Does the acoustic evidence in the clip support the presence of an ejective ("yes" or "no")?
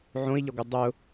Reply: no